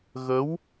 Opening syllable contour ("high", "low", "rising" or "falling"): rising